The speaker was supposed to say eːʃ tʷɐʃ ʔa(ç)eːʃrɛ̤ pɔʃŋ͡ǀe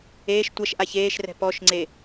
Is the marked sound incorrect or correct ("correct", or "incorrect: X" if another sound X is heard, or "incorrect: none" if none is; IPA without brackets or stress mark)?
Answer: correct